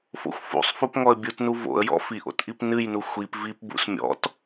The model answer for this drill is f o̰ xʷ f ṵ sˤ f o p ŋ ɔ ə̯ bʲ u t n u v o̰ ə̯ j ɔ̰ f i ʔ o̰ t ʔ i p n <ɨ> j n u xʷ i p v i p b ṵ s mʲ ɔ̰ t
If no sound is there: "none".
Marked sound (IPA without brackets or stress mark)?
ɨ